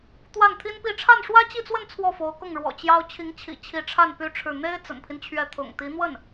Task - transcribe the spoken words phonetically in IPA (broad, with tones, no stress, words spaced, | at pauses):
t̪wa˥˩nt̪ʰi˥npi˥˧ ʈ͡ʂʰa˥˩nʂwä˥t͡ɕi˥˧t͡swə˥˧n t͡sʰwɔ˥˩fo˧˥ʊ̯kʊ˥˩ŋɻwɔ̰˨˩ t͡ɕjɑ˥ʊ̯ t͡ɕʰi˧˥ŋt͡ɕʰḭ˨˩ t͡ɕʰi˧˥ʈ͡ʂʰa˥˩n py˥ʈ͡ʂʰɻ̩˥˩ n̪e˥ɪ̯ t͡sə̰˨˩npʰi˦nt͡ɕʰɥɛ˧˥ t̪ʰʊ̰˨˩ŋt̪i˧˥n̪wə˥˩n